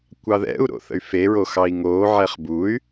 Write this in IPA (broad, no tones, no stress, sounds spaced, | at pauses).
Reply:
kʷ ɑ ð ɛ̰ u̯ ɾ o̰ θ ə̰ y̯ f e ɹ o x ɑ i̯ ŋ oː ʕ ɛ χ b u y̯